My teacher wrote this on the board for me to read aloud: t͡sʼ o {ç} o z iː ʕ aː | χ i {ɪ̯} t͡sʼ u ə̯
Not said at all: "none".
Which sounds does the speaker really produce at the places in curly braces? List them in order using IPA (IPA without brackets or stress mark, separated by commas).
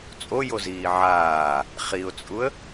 j, ʊ̯